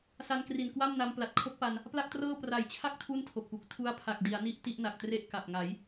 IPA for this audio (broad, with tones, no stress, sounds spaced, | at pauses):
s a˧ n k r i˨˩ n k w a˥˩ m n a˧ m p l a˨˩ t̚ kʰ o˦˥ k̚ p a˧ n | p l a˥˩ k̚ t r ɤː˥˩ p r a˩˦ j t͡ɕʰ a˦˥ k̚ tʰ u˥˩ n tʰ o˨˩ k̚ p u˨˩ k̚ tʰ u˦˥ a̯ pʰ a˨˩ k̚ d i˩˦ a̯ n i˥˩ ʔ t i˥˩ ʔ n a˨˩ k̚ t r e˥˩ ʔ k a˨˩ p̚ ŋ a˩˦ j